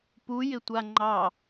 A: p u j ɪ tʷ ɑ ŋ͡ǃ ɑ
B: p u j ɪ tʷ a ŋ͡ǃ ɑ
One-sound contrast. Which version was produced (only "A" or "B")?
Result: B